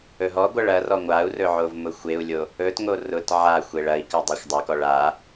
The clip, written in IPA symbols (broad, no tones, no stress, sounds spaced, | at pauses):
ɵ ɦ ɔ ɡʷ ɐ ɭ ɐ r ɔ ŋʷ a u̯ r ɵ ʕ o v m ʊ xʷ e u̯ lʲ o | ɵ t ŋ o r ʊ t ʕ a xʷ e ɭ ɐ i̯ k ɐ dˤ a xʷ dˤ o k ɔ ɭ a